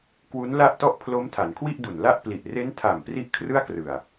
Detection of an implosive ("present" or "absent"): absent